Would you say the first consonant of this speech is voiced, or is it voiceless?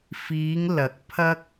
voiceless